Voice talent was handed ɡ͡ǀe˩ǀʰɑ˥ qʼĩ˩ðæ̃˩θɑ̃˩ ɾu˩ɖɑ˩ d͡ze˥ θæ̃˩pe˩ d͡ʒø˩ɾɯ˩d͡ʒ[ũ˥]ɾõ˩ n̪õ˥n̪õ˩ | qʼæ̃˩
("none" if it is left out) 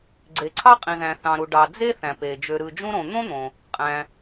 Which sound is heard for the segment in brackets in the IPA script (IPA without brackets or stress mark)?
ũ˥